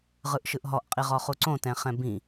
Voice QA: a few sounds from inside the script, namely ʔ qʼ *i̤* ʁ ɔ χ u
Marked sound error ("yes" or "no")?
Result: yes